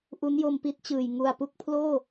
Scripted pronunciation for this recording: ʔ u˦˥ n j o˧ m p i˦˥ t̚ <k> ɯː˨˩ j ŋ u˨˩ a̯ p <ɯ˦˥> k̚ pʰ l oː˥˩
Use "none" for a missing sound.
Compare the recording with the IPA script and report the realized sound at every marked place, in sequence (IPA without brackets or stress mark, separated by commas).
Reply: t͡ɕ, u˦˥